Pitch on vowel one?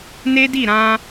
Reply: high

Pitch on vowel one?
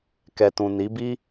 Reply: low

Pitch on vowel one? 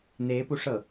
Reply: rising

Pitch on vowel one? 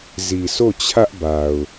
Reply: low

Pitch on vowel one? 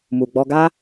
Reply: low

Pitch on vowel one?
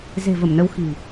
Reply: low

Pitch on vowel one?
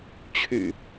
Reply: low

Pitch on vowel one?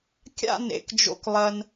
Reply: falling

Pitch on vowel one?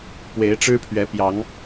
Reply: rising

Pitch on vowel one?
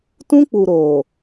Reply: high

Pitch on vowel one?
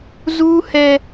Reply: high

